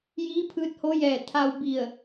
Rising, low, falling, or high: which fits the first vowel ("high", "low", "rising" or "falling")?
rising